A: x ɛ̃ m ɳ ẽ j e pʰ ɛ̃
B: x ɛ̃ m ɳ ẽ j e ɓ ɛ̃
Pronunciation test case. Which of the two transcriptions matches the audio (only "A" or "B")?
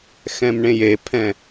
A